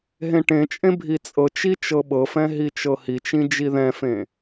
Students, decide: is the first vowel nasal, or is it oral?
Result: nasal